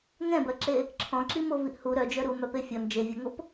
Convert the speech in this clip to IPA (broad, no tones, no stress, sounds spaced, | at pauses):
ŋ ɛ̃ b ɜ ǁ e | ǁʰ ɔ̃ ǁ i m o v i ʔ h u ɾ œ d͡ʒ œ ɾ u m œ p e fʲ ɔ n d͡ʒ e vʲ ʌ ŋ o p